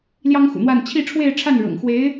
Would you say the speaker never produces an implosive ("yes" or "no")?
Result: yes